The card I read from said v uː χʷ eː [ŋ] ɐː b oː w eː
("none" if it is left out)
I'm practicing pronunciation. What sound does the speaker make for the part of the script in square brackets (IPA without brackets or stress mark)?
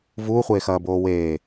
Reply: x